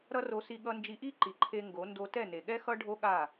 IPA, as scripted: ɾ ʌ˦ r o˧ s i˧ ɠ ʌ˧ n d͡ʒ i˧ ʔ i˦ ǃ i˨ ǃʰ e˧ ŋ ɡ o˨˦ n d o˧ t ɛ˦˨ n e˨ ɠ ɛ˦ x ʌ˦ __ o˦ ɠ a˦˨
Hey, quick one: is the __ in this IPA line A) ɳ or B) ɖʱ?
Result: B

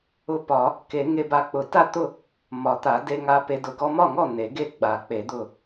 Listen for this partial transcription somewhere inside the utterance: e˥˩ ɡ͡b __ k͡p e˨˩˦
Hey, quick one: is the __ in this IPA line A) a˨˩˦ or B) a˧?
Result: A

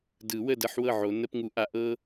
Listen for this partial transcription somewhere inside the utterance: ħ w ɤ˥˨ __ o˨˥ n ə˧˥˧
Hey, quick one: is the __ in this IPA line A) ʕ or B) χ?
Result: A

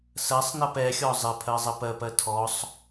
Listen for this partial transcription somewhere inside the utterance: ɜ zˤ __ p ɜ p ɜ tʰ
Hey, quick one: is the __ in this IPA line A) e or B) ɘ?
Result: B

